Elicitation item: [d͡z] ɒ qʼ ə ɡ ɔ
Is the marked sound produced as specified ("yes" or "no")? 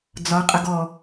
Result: yes